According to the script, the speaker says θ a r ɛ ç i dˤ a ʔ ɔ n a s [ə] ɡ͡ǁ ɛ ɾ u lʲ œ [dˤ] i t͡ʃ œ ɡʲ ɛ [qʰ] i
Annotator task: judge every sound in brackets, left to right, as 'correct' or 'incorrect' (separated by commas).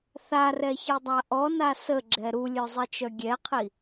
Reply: correct, incorrect, correct